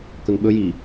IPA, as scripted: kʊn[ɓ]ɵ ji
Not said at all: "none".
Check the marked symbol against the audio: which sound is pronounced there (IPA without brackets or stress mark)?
ɓ